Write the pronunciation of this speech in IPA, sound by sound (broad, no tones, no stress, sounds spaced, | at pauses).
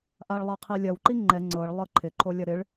ʔ a ɭ lˠ ɐ qʰ i lʲ ɐ w ǃ i ŋ͡ǃ ɛ ŋ͡ǀ ɤ ɭ lˠ ɤ ǃʰ ɪ ǃʰ o lʲ ɐ ɾ ɪ ɭ